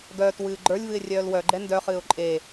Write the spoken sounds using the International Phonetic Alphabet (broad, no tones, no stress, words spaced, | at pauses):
ɡœːt wɨːɡ͡ǃə˞lʲvɨɪ̯ rʲœːlwœɡ͡ǃɛ ndœχɨːʊ̯ ǃʼe